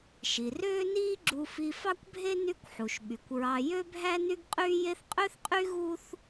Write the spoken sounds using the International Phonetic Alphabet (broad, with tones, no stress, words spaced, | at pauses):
ʃi˩ røː˥niː˥ɡ͡ǁu˧fi˧ fɑ˥kʷbʱe˥ ny˥kʷħu˩ʃɓy˩kʷɹɑ˧ jø˥bʱæ˥ ny˥ɡqʼyː˥je˥θ qʼø˥θqʼy˥ ɣu˥θ